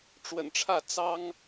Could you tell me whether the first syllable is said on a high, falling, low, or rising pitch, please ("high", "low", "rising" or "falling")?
low